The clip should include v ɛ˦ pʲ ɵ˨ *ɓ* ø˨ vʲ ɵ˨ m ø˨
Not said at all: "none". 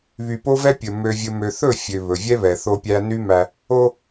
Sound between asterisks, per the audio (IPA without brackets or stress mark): m